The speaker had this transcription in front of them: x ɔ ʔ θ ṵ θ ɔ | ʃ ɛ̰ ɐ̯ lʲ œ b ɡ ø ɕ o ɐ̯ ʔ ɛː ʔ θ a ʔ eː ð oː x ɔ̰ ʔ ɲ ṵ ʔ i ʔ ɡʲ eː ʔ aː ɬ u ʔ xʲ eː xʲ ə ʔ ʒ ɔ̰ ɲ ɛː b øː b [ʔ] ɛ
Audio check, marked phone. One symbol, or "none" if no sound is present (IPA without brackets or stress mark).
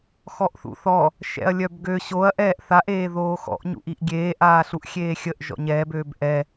ʔ